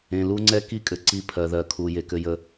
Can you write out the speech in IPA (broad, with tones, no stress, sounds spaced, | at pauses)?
ẽ˨ l u˦ ŋ͡ǀ ɛ˦ k i˦ kʼ ɘ˨ ǀ i˦ pʰ ɜ˨ ð ɜ˨ kʰ u˨ j e˨ k ɘ˦ j ə˦